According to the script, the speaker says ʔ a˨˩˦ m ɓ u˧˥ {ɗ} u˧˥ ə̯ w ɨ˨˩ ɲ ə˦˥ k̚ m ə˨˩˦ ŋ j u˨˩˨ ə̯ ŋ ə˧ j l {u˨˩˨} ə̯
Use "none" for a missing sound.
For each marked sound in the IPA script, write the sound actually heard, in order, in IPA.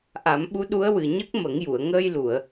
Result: ɗ, u˨˩˨

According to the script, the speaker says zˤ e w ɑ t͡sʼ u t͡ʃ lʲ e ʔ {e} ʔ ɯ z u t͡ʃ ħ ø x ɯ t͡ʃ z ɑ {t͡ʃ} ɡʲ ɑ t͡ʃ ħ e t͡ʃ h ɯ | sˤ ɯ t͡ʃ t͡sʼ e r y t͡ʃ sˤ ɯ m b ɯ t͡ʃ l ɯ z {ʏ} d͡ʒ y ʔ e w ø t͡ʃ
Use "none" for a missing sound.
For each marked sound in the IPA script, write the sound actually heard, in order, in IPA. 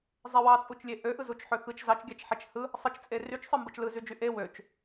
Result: ø, t͡ʃ, y

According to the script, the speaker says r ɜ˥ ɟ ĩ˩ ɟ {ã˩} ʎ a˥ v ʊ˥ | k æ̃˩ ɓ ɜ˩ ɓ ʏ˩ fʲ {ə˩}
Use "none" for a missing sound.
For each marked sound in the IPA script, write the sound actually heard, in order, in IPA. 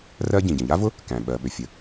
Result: ə̃˩, ə˩

